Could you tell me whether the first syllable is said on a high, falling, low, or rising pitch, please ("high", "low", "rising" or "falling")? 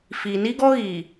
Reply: low